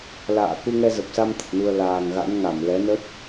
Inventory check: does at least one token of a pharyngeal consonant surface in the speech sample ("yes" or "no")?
no